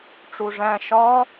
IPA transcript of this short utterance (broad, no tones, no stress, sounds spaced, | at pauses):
ʈ͡ʂ u ʐ æ̃ ʃ ɒ